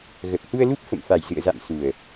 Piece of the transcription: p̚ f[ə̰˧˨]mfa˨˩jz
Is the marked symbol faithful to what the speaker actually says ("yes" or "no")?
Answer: yes